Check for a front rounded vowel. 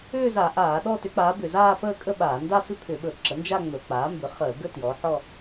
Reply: present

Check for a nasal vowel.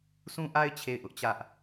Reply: present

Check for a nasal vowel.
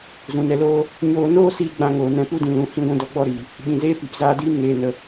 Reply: present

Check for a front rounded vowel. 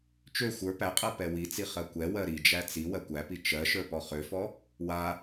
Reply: present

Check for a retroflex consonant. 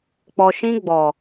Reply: absent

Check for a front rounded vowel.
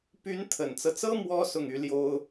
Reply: present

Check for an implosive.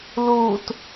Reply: absent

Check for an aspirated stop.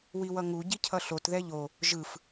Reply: present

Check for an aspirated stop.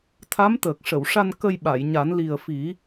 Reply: present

